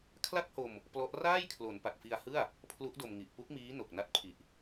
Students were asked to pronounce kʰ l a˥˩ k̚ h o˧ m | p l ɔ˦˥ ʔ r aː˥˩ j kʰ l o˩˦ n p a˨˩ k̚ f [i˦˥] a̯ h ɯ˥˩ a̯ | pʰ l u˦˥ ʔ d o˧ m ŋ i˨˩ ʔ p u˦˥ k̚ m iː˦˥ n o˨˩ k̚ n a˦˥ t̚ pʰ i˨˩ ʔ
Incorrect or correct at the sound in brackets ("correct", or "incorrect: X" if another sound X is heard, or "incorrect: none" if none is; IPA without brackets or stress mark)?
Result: incorrect: i˧